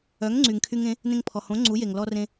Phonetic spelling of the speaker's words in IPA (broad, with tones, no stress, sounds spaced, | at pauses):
œ˩˥ ŋ ŋ͡ǀ y˩ ŋ kʰ y˧ ŋ ẽ˩˥ | n ẽ˧ ŋ pʰ ɔ˩ h õ˩˥ ŋ͡ǀ u˩˥ j e˩ ŋ l ɔ˧ r ẽ˧